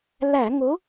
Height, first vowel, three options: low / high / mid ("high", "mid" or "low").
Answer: low